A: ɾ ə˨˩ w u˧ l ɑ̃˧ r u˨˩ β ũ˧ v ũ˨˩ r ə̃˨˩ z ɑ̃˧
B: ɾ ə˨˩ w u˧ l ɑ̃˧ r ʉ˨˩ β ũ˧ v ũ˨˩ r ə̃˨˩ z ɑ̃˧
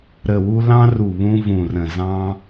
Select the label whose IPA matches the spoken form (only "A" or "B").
A